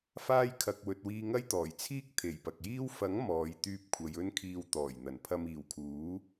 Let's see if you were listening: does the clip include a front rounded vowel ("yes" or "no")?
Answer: yes